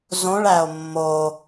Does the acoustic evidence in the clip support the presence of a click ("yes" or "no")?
no